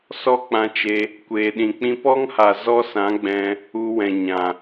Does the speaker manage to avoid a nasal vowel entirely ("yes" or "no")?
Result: no